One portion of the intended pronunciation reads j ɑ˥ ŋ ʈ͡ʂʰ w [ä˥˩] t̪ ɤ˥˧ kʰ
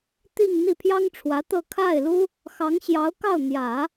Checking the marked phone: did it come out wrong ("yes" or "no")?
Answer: yes